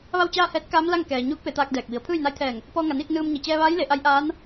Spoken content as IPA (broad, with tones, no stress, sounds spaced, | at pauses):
ʋ a˥˨ w t͡ɕ aː˥˨ h ɛː˧˥ t̚ k aː˧˥ m l a˥˨ ŋ k ɛː˩ ɲ uː˧˥ k̚ p e˩˧ t̪ aː˧ k̚ d ɛː˧˩ k̚ ʋ i˩˧ ə̯ pʰ ɯː˥˨ j n a˧˥ j t̪ʰ ɛː˧˩ ŋ | p ɔː˧ ŋ a˩ n iː˥˨ k̚ n ɯː˧ m ɲ i˩ t͡ɕ ɛː˧ ʋ aː˧˥ j l e˩˧ ʔ a˧˥ j ʔ aː˧˥ n